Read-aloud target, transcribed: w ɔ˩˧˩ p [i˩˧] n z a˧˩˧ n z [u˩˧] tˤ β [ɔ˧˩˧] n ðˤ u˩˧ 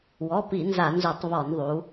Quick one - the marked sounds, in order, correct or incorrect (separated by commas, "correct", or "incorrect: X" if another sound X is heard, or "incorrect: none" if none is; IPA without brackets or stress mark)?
incorrect: i˧˩˧, incorrect: u˧˩˧, correct